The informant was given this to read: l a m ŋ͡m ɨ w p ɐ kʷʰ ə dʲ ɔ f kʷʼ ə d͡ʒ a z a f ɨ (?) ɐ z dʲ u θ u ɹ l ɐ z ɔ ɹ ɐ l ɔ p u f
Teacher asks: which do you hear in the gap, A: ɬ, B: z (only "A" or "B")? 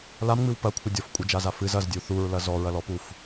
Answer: B